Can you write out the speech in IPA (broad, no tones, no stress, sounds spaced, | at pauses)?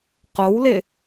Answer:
q o w l ɪ